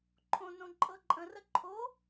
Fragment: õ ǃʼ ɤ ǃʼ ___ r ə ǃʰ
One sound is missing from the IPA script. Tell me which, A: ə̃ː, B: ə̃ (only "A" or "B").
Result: B